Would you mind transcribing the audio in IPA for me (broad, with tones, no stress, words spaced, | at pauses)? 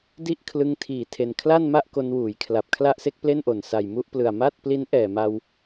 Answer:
di˥˩ʔkʰlɯ˧ŋtʰiː˨˩tʰe˨˩n kʰla˥˩nma˥˩ʔ ko˧nwuː˩˦jkʰla˨˩p̚ kʰla˥˩ʔse˥˩k̚ple˥˩nʔo˨˩n sa˨˩jmu˥˩ʔplɯ˨˩a̯ ma˥˩t̚pli˦˥n ʔɛː˨˩ma˧w